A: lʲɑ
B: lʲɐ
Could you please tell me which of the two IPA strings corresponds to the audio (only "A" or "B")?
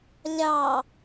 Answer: A